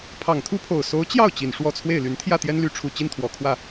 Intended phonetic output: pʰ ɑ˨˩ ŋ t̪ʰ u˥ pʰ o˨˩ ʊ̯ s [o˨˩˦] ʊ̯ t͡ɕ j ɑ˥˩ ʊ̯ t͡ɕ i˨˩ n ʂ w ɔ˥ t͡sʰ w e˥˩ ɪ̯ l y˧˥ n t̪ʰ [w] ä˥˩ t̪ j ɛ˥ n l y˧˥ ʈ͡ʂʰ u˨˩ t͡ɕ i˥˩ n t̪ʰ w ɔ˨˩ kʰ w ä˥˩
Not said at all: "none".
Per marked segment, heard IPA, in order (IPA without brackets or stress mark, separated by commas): o˧˥, j